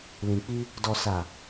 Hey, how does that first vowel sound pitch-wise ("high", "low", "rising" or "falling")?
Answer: low